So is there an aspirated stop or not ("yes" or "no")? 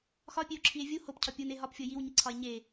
yes